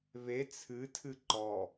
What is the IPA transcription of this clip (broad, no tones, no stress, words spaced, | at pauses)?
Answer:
βe t͡sʰɨtʰɨ ǃɔ